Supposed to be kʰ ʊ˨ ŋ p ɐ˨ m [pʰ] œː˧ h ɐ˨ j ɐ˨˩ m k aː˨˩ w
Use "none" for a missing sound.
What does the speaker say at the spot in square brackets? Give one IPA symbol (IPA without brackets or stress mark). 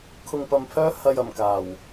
pʰ